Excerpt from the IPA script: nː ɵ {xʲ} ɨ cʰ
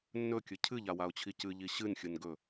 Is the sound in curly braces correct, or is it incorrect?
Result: incorrect